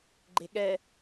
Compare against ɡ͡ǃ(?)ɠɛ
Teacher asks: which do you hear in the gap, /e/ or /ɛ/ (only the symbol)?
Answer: e